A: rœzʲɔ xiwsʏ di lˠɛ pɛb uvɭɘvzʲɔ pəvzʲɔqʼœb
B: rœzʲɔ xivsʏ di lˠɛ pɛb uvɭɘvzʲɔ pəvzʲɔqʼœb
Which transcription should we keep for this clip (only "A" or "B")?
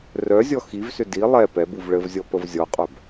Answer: B